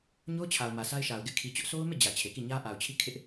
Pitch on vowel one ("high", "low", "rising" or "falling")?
high